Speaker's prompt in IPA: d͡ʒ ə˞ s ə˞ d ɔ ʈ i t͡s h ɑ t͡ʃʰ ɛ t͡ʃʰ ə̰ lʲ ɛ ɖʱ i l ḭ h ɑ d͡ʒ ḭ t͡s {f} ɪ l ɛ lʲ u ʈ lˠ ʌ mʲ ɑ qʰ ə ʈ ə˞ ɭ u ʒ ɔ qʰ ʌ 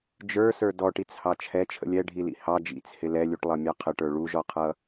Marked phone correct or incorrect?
incorrect